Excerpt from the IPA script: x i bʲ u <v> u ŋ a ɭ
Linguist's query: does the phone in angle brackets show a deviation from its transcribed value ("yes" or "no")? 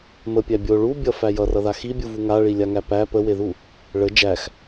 no